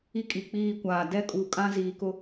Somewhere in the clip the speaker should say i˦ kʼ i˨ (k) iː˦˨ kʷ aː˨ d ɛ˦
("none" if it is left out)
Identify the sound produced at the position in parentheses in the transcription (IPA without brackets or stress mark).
k͡p